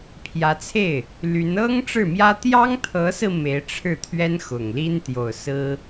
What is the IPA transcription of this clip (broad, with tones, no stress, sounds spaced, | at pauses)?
pʰ j ä˧˥ t͡sʰ e˥˩ ɪ̯ | l y˧˥ n ɤ˥ ŋ ʈ͡ʂ ɻ̩˥˩ m j ä˥ t̪ j ɑ˥ ŋ t̪ʰ ɤ˧˥ s ɹ̩˧ m e˧˥ ɪ̯ ʈ͡ʂʰ ɻ̩˥˩ t̪ʰ ɥ ɛ˥ n x ʊ˨˩ ŋ l i˥ n t̪ j o˨˩ ʊ̯ s ɹ̩˥